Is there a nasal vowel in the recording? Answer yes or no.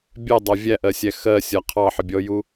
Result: no